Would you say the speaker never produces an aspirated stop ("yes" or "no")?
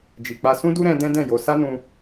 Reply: yes